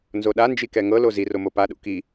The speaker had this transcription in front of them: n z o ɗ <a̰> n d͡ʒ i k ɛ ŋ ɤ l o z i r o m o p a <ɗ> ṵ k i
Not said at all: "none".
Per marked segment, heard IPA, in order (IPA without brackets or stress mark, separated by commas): a, ɗ